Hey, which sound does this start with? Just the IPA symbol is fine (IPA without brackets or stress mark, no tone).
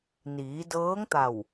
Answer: n